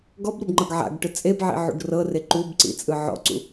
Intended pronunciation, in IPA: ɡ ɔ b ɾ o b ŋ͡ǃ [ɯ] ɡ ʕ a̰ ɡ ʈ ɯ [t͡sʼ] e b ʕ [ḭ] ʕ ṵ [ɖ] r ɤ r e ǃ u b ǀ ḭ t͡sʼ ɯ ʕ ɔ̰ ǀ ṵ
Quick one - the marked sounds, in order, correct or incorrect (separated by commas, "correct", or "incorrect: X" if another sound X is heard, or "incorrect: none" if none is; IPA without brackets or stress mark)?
incorrect: ɤ, correct, correct, correct